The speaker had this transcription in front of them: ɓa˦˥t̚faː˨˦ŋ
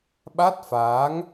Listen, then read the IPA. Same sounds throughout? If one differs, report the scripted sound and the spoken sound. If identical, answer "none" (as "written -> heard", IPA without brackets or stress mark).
none